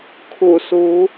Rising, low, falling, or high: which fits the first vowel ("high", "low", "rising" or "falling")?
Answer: low